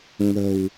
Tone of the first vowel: low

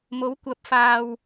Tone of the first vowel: rising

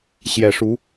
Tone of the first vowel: low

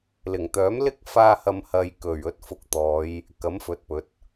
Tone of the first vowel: low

